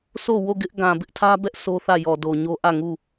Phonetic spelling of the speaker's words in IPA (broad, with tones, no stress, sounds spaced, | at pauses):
sʰ o˦˨ w o˦˨ ɡ ɪ˦ ʔ ɡ ã˨ b ɪ˦ ʔ tʰ ä˦ b ɛ˦ ʔ sʰ o˦ θ ä˦˨ j ɔ˨ d o˨ ɲ o˦ ʔ ä˦˨ ŋ u˦˨